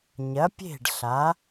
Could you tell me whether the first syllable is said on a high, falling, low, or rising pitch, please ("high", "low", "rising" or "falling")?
rising